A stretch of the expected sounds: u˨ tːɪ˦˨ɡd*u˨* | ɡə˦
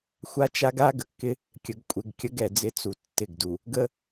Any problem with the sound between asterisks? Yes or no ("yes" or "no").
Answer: no